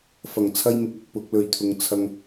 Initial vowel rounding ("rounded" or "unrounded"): unrounded